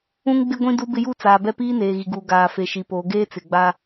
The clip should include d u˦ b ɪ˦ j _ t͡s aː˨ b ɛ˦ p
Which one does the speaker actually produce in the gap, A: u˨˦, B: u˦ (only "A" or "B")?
B